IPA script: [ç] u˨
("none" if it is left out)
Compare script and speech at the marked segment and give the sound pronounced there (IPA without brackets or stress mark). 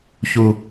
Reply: ç